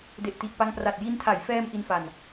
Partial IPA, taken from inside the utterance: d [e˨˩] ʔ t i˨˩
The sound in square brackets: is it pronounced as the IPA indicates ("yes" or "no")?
yes